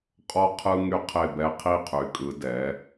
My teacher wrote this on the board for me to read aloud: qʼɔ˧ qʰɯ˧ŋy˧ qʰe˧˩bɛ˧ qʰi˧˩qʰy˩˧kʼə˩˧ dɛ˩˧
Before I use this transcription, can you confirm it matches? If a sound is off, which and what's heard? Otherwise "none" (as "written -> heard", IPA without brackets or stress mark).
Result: ə˩˧ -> ɯ˩˧